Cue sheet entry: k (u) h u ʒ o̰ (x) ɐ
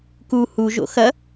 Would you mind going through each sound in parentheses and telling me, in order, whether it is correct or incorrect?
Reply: correct, correct

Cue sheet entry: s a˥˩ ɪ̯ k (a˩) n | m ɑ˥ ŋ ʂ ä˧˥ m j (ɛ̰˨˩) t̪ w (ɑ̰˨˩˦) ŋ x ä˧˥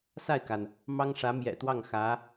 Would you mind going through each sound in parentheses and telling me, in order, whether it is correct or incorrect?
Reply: correct, correct, incorrect: ɑ˥˩

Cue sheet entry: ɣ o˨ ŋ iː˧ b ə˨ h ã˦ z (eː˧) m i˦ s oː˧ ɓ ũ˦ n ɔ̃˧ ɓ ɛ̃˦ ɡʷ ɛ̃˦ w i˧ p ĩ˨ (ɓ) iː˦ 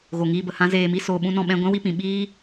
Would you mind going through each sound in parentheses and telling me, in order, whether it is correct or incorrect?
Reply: correct, correct

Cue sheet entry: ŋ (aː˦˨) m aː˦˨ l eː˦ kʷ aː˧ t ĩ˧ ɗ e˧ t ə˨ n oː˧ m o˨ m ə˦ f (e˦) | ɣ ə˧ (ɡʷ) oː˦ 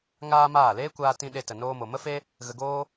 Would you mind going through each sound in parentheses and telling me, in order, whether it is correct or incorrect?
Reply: incorrect: aː˦, correct, incorrect: ɡ

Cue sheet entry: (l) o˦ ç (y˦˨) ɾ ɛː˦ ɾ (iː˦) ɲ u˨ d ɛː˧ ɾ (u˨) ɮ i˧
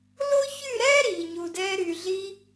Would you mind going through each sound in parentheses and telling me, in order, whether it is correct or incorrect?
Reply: correct, correct, incorrect: iː˨, incorrect: y˨

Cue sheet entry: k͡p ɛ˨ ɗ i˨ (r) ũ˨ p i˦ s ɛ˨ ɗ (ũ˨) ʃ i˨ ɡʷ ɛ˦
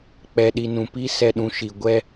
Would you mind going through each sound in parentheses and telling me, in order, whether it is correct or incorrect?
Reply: incorrect: n, correct

